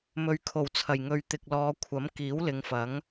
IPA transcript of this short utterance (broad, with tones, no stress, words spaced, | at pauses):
mɵ˨˧ɥkʰo˨˩wt͡sʰɐ˨˩j ŋɵ˨ɥ t̪ɪ˨k̚lɔː˨˧kʷʰɐ˨˥m kiː˨˥wlɪ˨˧ŋfɐ˨˥ŋ